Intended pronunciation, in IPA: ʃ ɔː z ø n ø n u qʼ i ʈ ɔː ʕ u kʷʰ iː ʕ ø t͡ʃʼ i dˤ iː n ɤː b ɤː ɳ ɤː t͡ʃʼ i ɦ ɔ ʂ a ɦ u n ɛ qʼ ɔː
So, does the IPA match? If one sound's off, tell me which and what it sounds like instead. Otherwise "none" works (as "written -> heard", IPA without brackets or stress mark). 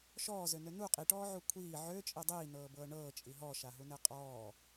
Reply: ʂ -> ʃ